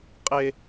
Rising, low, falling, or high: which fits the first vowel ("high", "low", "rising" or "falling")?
high